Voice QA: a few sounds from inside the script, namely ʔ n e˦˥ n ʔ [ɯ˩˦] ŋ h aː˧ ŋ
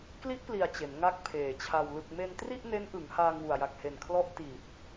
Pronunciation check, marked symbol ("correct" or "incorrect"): correct